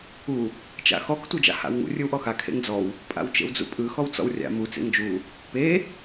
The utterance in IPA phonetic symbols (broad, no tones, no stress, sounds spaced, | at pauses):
u | t͡ʃ a̰ x ɔ k tʷ ɯ d͡ʒ a̰ h a̰ w ŋ ṵ rʲ ɯ w ʔ ɔ x a kʰ ḛ ŋ d͡z ɔ w | pʼ a̰ w t͡ʃ ḛ w d͡z ṵ pʼ ɯ x ɔ w t͡s ɔ̰ w rʲ a̰ m u t͡s ḛ ŋ d͡ʒ u | p e